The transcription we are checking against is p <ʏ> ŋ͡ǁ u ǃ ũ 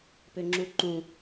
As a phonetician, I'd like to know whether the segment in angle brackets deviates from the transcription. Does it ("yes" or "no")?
no